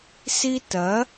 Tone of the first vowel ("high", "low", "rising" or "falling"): high